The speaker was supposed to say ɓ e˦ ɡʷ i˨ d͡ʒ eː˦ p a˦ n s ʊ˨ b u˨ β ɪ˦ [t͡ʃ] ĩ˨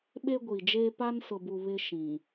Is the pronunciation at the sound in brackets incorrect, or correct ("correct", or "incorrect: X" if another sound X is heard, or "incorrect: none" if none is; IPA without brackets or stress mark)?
incorrect: ʃ